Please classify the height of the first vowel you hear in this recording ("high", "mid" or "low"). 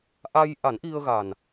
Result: low